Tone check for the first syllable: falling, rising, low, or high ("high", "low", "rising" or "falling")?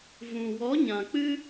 low